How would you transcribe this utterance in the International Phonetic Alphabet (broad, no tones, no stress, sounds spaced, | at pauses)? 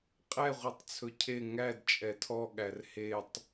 qʼ ɛ ʁʷ i tˤ t͡sʰ ɵ cʰ e ŋ æ d t͡ʃʼ ɛ tʰ ɔ ɠ æ r h e tˤ